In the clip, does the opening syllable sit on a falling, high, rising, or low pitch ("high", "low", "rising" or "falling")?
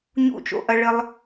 falling